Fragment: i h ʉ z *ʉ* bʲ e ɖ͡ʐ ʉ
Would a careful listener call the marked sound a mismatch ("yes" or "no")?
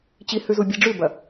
yes